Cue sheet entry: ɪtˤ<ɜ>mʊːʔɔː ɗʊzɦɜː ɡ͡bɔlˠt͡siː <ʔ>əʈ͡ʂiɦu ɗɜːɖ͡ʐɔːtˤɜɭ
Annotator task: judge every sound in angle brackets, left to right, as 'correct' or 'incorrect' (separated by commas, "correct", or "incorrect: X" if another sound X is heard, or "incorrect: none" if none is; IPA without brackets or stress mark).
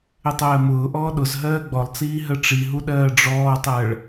incorrect: ɜː, incorrect: ɦ